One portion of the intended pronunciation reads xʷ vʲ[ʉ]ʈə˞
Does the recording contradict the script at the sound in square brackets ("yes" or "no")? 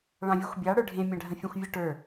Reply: no